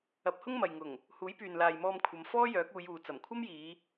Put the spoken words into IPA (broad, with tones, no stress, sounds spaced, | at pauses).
ɐ˨˥ p̚ h ʊ˥ ŋ m ɐ˨ j ŋ ʊ˨˩ ŋ | h uː˨˥ j p yː˨ n l aː˨ j m ɔː˧ m kʷʰ ɐ˨˧ m f ɔː˥ j œː˨˥ k̚ uː˨˧ j uː˨ t͡s ɐ˨˩ m kʷʰ ɐ˥ m j iː˨˧